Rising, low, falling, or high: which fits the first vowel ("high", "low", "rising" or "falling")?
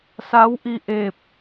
rising